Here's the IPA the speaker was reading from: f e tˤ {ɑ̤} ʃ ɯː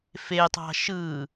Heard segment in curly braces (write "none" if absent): ɑ̤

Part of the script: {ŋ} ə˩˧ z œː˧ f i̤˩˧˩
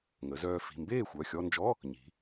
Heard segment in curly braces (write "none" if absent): ŋ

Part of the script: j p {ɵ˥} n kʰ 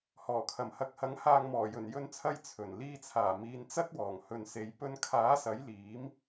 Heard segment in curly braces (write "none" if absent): ɵ˧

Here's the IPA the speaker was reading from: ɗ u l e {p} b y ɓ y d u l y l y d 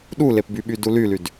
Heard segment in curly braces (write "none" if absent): p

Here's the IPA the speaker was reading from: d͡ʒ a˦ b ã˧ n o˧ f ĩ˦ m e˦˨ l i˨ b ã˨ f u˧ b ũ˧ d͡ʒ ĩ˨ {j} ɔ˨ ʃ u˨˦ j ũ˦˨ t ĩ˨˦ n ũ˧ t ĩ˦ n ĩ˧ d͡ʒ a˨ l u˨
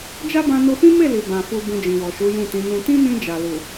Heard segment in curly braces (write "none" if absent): w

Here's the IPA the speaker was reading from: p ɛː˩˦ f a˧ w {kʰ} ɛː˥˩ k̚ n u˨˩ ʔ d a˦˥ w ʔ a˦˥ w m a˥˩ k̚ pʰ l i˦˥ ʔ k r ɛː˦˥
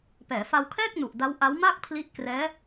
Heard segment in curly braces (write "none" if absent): kʰ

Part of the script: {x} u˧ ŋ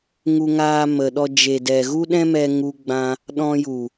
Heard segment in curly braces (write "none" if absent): ŋ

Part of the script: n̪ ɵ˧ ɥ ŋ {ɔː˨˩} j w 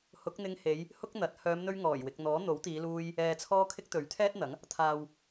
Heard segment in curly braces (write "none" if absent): ɔː˨˩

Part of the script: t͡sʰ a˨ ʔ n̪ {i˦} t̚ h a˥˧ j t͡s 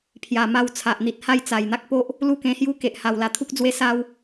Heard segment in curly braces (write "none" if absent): i˨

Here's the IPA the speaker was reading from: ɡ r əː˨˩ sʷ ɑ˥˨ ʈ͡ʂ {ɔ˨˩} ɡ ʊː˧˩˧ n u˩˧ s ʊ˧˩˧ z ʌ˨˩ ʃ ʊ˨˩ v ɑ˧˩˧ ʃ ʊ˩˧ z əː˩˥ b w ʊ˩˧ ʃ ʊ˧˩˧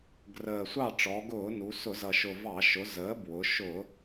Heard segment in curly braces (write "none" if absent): ɔ˩˧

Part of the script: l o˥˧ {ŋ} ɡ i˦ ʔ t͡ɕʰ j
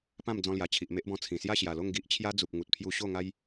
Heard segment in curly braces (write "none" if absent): ŋ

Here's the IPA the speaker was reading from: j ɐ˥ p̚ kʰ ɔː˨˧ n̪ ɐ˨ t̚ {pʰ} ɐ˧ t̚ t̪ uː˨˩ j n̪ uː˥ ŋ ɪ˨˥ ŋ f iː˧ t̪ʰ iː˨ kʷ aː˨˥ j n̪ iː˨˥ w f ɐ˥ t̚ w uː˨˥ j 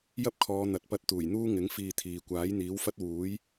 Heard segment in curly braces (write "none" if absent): p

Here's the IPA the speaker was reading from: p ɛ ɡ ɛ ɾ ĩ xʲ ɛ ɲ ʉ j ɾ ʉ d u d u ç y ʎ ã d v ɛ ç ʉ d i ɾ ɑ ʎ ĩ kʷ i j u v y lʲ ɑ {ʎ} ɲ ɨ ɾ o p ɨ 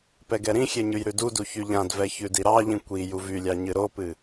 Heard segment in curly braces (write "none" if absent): none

